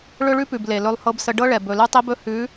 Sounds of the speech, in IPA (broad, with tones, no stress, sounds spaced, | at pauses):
ɭ ɵ˦ ɭ ʉ˦ p ʉ˨ b l e˨ l ɵ˦ lˠ h ɤ˦ b s ə˦ ɖ ɤ˦ ɭ ɛ˨ b ɵ˨ l ʉ˦ tˤ i˦ b ɵ˦ h ʉ˨˦